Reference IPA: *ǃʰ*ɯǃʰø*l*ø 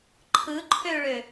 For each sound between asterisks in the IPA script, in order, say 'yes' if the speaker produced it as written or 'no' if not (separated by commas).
yes, no